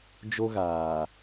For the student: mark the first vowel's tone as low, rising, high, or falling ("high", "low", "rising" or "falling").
high